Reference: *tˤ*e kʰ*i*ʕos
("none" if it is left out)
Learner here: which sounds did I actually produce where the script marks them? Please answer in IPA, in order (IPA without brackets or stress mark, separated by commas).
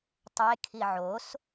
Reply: tˤ, i